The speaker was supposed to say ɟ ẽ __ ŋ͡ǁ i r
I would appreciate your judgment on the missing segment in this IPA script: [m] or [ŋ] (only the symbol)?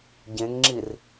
ŋ